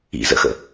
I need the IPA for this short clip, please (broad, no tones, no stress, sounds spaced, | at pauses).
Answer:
ḭ z ə̰ x ə̰